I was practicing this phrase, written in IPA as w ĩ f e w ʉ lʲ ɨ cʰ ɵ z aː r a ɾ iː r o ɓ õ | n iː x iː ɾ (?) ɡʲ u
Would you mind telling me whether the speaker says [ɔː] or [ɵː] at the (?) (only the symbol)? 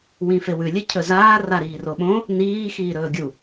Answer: ɵː